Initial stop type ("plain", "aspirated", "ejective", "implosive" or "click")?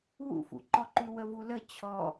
click